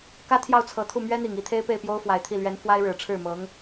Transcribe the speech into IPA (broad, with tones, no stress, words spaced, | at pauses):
kä˥t̪ʰjɑ˥˩ʊ̯t͡sʰɤ˨˩t̪ʰu˥˩ mɥɛ˥n̪i˨˩ŋ i˧˥t̪ʰe˥ɪ̯pe˥˩ɪ̯pjo˥ʊ̯ fwa˨˩ɪ̯t̪ʰi˥˩lɥɛ˧˥n fwa˥ɪ̯ɻɻ̩˨˩ʈ͡ʂʰɻ̩˥˩mɤ˧˥ŋ